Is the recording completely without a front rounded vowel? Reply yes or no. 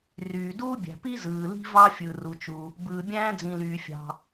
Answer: no